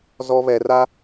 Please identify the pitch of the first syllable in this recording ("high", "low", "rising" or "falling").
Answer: low